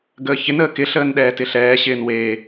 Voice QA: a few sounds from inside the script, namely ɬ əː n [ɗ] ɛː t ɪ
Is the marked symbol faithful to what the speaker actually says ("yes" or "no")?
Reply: yes